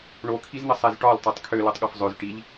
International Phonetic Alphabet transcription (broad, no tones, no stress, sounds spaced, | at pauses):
ɳ o kʰ i z n̪ ɘ sˤ ɛ z ʈ ɒ l tˤ ø tˤ kʰ ø l o tˤ ɠ ɒ f zˤ ø z ʈ i ʎ